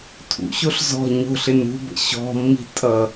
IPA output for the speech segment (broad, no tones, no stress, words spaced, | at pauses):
tʰṵɕoɬ zɔ̤ ɲo̤ɬɪn ṳbə̰ ɕɔ̤mːi̤ tʼʌ